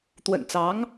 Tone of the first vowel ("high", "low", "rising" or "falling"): low